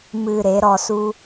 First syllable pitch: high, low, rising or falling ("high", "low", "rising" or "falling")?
low